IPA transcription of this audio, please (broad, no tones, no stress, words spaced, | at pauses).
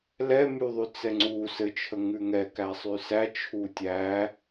lɛmyðˤy t͡sɛŋ͡ǀu sɘt͡ʃʰə ŋʉŋɛ kæsˤysæ t͡ʃʰutʲæ